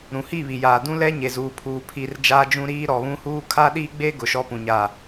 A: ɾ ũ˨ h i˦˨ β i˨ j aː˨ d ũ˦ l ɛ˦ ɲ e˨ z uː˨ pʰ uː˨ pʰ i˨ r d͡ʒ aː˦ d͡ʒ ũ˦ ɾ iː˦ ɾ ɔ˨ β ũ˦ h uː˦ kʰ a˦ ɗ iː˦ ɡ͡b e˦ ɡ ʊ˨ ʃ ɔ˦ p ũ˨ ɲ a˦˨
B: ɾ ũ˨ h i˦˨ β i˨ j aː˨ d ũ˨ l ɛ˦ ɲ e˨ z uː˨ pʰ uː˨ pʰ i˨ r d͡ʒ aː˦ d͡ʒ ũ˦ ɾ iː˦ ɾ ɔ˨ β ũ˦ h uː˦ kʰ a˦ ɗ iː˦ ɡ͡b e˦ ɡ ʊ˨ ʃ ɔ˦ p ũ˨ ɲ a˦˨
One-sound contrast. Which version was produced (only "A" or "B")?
A